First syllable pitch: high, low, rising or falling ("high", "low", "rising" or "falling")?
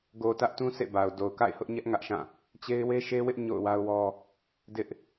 low